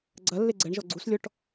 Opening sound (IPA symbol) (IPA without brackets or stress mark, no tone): ɡ͡ǀ